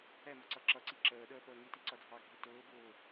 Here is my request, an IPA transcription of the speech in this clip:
ɛmʌ ǀʌǁʌǀi ǁəːɗəː pəːŋiti ǀʌdʱɑɡʱi tʊːbʊː

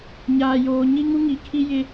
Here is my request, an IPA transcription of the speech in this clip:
ɲaː˨joː˨ ɲi˦ŋu˦ŋi˨˦kʰi˦ jɪ˦

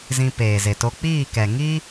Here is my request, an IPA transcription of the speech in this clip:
zĩ˧peː˨ze˨to˧ k͡piː˦˨kɛ˨ŋi˦

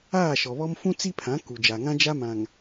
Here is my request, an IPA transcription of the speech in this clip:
aː˦˨ʃɔ˨βɔ˦m fũ˦t͡si˦pʰã˨˦ ku˨d͡ʒa˨ŋã˦ d͡ʒa˦mã˨ŋ

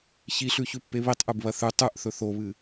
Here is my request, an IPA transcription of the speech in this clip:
çiɬʉçʉpːe βitˤʔʉbβɐ θʉ tˤʉʔθɵ θoβɨ

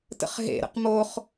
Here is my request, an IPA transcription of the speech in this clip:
tə̰χɦḛ ɾə̰qmoχ

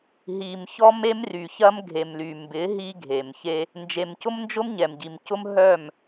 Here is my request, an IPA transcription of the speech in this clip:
ɦi˨m çɔ˦me˦mry˨çɐ˦m ɡʱe˨mly˨mbɪ˨˦ ɦi˦ɡʱe˨mçe˦ | nd͡ʒe˨mcʊ˦mnd͡ʒʊ˦m ɲɛ˨mɟi˨mcʊ˦m ɦœ˦˨m

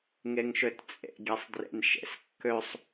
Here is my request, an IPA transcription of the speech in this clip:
ŋeŋʃøtt͡sʼḛ ɡʲɛsˤdrḛnʃḛskːøsˤ

